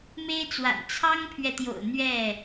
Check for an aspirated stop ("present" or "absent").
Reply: present